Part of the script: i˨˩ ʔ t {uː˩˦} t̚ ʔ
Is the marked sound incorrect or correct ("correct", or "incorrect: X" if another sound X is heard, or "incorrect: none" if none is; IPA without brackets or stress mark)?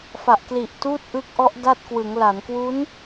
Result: incorrect: uː˥˩